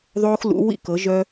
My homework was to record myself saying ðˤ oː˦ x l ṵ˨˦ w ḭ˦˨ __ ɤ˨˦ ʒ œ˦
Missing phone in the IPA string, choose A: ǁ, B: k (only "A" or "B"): B